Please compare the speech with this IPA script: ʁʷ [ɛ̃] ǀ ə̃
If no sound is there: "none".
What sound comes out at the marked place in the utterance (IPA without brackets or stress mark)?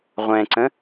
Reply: ɛ̃